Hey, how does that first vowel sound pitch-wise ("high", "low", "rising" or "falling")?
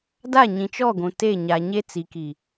falling